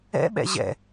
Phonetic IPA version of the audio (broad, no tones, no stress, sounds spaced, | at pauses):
ɛ̰ ɓ ɛ̰ ʑ ɛ̰